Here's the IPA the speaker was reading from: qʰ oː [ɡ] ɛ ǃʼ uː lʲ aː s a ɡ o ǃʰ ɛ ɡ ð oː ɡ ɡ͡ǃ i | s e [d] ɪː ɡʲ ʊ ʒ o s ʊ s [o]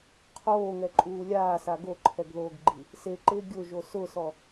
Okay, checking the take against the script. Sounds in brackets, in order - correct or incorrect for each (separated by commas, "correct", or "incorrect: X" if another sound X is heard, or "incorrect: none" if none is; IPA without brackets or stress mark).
incorrect: ŋ, incorrect: ǃ, incorrect: ɔ